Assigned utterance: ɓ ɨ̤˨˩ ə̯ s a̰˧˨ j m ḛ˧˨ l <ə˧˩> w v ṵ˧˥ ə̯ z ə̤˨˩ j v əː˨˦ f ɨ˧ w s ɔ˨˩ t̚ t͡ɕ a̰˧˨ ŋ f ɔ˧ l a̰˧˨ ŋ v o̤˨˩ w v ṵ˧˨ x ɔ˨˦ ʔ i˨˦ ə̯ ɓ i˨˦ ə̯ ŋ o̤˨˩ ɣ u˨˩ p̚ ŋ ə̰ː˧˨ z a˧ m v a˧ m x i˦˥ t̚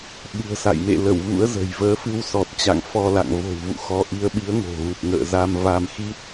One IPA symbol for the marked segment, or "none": ə˧˩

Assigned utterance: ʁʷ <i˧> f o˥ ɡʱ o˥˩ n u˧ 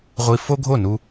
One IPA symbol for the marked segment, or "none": i˧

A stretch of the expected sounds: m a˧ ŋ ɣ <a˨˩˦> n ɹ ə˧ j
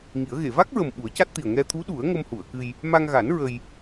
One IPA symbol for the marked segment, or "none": a˨˩˦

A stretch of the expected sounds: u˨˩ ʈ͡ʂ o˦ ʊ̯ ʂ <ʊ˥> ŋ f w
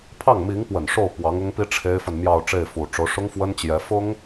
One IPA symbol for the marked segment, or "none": ʊ˥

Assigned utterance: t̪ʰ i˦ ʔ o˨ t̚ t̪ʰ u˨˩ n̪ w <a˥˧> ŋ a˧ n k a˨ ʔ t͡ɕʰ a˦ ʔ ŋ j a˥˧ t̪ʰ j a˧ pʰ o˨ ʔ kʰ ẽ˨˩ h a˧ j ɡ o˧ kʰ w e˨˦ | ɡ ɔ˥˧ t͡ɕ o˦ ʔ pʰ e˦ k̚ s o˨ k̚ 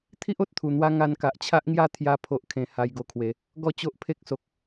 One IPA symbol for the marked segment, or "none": a˧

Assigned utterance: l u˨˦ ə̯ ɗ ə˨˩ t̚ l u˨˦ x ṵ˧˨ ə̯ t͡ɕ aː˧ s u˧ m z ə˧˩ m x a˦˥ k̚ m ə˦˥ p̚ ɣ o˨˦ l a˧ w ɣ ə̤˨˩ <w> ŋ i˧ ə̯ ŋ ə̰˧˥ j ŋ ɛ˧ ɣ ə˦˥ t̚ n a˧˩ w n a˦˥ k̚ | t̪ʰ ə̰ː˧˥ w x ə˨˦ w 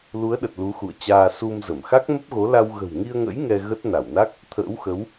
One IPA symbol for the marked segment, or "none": w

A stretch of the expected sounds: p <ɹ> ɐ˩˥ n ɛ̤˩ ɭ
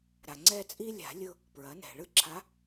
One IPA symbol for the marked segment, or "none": ɹ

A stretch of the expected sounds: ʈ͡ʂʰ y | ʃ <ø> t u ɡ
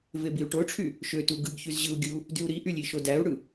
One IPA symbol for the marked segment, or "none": ø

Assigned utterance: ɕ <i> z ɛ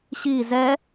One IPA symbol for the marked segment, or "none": i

